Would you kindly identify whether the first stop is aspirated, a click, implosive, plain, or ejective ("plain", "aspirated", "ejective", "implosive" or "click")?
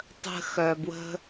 plain